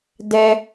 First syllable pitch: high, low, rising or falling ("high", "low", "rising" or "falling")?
high